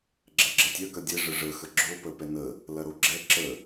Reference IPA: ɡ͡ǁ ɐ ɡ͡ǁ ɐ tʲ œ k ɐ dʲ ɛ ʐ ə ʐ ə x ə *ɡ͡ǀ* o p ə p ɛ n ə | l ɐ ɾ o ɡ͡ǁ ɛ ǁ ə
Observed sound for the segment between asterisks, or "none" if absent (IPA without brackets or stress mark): ɡ͡ǁ